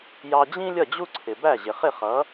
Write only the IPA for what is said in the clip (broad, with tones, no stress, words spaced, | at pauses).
jɑ˧d͡ʑĩ˥ lʲʌ˥˩d͡ʑu˥ǀʰɪ˩ bæ˥˩ʑɪ˩χɪ˥˩ χʌ˩˥